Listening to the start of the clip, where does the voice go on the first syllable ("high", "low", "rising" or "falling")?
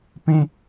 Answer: high